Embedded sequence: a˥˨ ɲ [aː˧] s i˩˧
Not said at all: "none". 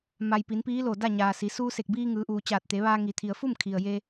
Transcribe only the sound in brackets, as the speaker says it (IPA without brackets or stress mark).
aː˩